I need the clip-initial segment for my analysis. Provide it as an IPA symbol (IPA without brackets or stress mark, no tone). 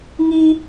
ŋ